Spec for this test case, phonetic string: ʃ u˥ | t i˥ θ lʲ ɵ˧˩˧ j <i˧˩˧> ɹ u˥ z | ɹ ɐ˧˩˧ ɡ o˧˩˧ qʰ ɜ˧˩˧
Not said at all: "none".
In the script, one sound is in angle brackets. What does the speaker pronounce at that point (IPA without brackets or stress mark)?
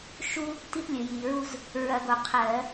i˧˩˧